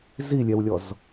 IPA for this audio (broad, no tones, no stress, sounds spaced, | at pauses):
z i lʲ ɛ w lʲ ɔ z